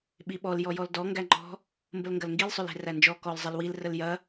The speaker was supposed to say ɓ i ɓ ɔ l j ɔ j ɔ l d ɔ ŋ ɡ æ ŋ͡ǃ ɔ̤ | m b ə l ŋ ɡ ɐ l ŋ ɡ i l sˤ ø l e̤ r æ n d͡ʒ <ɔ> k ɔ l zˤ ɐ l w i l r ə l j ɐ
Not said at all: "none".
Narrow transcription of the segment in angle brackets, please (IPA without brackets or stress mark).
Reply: ɔ